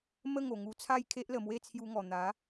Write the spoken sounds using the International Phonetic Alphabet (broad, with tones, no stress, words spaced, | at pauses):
mə˥˧ŋo˨˩ŋu˧t͡sʰa˥˧j kʰe˦ʔlə˨˩mwe˥˧ t͡sʰju˧ŋɔ˨˩n̪a˨˦